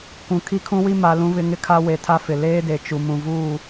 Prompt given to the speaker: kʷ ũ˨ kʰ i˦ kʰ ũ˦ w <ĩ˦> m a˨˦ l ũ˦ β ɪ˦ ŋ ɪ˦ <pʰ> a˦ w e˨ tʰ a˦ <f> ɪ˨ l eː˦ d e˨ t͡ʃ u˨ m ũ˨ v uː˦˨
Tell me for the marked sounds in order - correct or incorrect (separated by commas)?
incorrect, incorrect, correct